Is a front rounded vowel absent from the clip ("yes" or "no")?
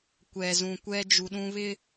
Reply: yes